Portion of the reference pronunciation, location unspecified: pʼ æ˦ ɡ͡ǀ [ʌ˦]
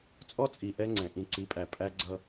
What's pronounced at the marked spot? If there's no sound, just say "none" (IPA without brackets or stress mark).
ʌ˦